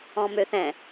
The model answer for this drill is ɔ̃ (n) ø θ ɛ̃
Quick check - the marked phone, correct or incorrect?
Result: incorrect